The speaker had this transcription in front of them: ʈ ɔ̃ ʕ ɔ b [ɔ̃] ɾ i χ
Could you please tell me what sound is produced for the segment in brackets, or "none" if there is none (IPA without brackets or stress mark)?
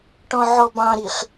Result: ɑ̃